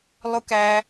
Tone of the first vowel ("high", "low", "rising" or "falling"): high